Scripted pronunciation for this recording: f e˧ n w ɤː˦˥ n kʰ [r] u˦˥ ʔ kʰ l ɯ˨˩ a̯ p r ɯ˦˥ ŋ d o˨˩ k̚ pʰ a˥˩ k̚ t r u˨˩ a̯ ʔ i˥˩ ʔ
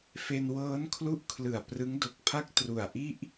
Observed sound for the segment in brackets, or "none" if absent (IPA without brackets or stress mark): l